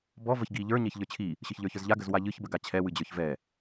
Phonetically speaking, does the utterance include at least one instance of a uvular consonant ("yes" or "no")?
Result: no